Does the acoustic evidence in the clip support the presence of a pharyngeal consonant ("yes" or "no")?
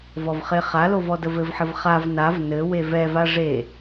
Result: yes